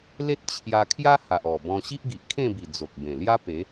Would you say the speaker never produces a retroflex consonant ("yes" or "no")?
yes